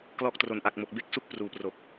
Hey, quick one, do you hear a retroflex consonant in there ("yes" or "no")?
no